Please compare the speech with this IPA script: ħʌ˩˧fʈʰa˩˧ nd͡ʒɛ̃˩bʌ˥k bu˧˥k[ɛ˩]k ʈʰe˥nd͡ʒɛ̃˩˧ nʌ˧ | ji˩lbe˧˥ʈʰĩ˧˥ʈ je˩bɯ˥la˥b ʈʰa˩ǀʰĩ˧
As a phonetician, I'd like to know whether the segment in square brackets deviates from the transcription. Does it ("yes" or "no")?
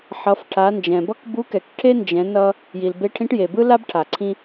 no